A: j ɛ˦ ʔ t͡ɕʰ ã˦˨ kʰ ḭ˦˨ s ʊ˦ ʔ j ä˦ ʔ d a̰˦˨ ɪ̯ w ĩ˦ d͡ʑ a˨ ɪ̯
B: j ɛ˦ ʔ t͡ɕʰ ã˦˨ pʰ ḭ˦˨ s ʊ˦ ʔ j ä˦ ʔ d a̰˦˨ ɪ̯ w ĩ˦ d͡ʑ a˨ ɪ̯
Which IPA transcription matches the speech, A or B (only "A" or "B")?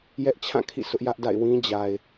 A